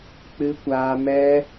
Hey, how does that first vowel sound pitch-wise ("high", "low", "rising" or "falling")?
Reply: high